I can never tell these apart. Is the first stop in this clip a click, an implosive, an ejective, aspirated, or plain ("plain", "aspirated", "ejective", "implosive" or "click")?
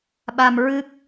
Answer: implosive